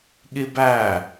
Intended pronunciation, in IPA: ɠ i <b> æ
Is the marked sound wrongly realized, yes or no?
no